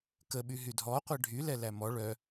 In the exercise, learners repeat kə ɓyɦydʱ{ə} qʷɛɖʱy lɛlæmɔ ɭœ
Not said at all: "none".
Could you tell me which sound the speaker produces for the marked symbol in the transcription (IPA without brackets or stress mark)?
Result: ɔ